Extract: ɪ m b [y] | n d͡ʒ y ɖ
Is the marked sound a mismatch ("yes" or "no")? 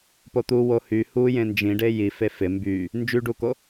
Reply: no